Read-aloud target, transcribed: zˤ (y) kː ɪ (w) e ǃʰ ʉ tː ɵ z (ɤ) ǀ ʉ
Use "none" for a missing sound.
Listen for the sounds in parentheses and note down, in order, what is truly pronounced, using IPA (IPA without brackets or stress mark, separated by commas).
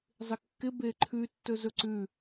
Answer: ɪ, b, ɵ